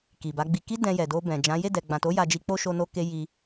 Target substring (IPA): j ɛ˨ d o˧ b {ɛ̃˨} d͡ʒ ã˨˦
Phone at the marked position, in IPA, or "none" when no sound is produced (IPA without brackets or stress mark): ɛ̃˨